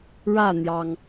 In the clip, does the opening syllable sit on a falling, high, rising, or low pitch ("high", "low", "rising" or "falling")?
falling